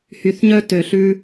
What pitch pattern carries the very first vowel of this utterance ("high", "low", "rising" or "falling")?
low